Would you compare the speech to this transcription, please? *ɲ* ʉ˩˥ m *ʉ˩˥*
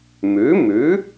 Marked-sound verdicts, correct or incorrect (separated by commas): incorrect, correct